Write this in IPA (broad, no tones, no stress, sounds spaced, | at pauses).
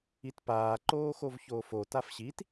i t p aː ǃ oː x o v ç oː f o t a f ɕ i t